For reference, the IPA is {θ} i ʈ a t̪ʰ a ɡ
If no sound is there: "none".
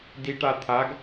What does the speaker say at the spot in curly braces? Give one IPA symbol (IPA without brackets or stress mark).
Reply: d